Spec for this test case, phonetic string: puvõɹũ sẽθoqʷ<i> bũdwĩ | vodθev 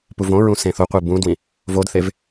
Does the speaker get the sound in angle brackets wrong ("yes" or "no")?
no